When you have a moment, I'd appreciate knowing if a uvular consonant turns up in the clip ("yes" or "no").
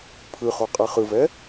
yes